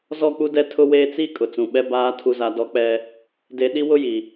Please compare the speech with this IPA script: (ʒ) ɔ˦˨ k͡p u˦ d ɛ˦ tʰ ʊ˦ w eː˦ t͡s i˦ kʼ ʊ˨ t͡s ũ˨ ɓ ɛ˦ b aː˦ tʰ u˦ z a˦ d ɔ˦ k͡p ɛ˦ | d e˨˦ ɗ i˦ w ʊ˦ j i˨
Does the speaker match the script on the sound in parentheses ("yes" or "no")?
no